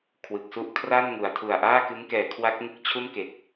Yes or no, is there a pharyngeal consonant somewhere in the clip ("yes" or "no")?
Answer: no